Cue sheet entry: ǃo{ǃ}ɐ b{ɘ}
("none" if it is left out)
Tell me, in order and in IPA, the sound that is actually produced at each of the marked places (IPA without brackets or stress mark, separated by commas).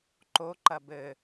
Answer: ǃ, ɘ